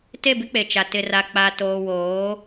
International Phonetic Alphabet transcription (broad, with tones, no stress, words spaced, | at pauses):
te˦˨bɪ˦k͡pe˨ t͡ʃa˨ tɪ˨ra˨ k͡pa˨toː˨woː˨˦